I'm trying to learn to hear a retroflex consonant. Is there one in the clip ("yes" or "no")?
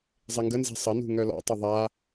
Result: no